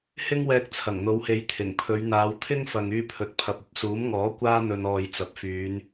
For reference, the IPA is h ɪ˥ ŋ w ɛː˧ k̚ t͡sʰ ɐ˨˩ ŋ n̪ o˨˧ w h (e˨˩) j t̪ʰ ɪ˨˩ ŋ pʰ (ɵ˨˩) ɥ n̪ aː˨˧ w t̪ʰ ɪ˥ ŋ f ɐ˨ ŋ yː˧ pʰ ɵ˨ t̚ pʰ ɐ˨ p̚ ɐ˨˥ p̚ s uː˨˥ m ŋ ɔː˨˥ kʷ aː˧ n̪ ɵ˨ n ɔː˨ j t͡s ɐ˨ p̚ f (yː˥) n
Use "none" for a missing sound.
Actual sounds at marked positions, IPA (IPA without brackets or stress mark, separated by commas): e˨˧, ɵ˨˧, yː˨˧